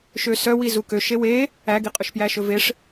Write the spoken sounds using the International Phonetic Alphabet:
ʃ ø s œ w i z u k ø ʃ e w e | æ ɡ i qʼ ɵ ʃ p j æ ʃ ɵ v e ʂ

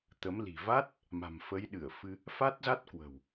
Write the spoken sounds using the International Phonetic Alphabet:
t̪ ə˨˦ m l i̤˨˩ v a˦˥ t̚ | m a̤˨˩ m f ə˨˦ j ɗ ɨ˧˩ ə̯ f ɨ˧ | f a˦˥ t̚ z a˦˥ t̚ k w ə̤˨˩ w

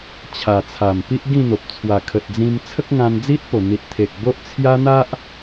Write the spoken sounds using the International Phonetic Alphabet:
t͡ɕʰ a˨˩ t͡sʰ a˨˩ m p i˦ ʔ ɡ ĩ˥˧ n̪ o˨ p̚ t͡sʰ w a˨˩ kʰ ə˨ t̚ d͡z ĩ˧ m t͡sʰ ə˦ k̚ ŋ ã˧ n d͡z i˦ t̚ p o˨˩ n̪ i˨ t̚ t̪ʰ e˨ k̚ b o˦ ʔ t͡sʰ j a˦ n̪ a˦ ʔ

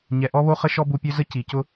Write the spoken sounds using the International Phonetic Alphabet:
ɲ ɛ˨ ʔ ɔ˦ β o˦ χ ə˦ ʃ ɔ˦ b u˧ pʲ ø˦ z ə˦ c i˨ c ʊ˦

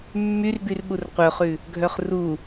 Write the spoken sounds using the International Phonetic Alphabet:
mː y r b y r ɓ u r qʷ œ χ ʉ | ɡʱ œ χ r u

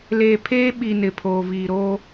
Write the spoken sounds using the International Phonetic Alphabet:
l eː˨ pʰ eː˦ ɓ i˨ n ɪ˨ pʰ oː˨ v iː˨ ɾ oː˦

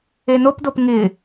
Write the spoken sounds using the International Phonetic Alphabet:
e n o p d o p ŋ ɪ

